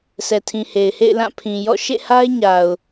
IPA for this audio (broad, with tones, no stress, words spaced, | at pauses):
sʰɛ˨tʰĩ˨he˨ɪ̯hḛ˦˨ɪ̯ lã˦˨pʰĩ˨jɔ̰˦˨ ʃḛ˦˨ha˦ɪ̯ ɲa˨ʊ̯